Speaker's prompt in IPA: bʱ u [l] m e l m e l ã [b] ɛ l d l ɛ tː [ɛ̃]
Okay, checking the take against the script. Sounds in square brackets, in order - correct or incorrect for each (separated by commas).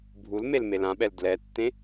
correct, incorrect, incorrect